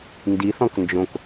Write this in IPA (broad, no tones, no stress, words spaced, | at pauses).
ndiθɔ̃k nd͡ʒõk